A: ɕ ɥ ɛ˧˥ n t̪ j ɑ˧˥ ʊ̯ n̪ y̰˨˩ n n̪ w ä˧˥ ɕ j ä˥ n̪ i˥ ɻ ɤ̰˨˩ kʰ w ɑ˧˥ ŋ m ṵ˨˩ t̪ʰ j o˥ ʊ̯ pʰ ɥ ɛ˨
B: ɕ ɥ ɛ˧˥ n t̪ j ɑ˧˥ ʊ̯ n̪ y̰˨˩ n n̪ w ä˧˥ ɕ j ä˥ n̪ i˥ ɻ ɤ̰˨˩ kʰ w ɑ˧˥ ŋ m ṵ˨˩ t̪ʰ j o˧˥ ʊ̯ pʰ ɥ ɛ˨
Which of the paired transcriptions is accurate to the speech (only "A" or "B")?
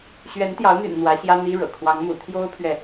A